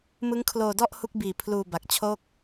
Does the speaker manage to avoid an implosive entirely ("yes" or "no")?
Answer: yes